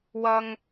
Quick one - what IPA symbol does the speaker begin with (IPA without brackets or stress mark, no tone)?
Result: w